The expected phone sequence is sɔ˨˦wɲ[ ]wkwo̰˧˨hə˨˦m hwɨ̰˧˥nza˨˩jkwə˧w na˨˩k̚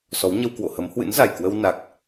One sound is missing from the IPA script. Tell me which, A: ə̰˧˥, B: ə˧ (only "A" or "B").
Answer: B